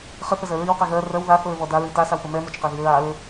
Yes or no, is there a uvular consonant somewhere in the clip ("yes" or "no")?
yes